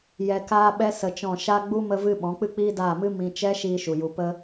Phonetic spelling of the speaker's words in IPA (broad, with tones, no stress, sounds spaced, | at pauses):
j ɛ˧ k aː˦ ɓ ɛ˦ s ə˧ t͡ʃ ɔ̃˦˨ ʃ a˦ ɡ͡b u˦ m ə˧ v ɨ˧ ɓ ɔ̃˨˦ k͡p ɨ˦ k͡p iː˦ d aː˦˨ m ɨ˦ m ĩ˧ t͡ʃ ɛ˦ ʃ iː˧ ʃ u˨ j u˧ p ə˦